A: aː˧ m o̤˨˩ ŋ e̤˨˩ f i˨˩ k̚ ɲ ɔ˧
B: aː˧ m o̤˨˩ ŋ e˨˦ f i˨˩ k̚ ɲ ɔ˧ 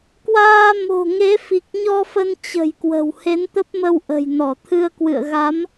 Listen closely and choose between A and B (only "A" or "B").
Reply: B